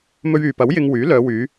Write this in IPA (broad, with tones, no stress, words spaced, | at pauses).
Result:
mɵ˧ɥyː˨pɐ˨˥w jɪ˧ŋ wyː˨˥lœː˨˧wyː˨˧